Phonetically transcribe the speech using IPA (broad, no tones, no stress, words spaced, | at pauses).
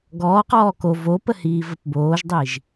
ɡɔː qɔːko vopəhiː vəpboːʒdˤiʒ